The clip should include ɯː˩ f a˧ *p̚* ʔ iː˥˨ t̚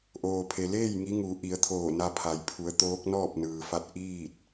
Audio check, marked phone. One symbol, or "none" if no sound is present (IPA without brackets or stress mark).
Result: t̚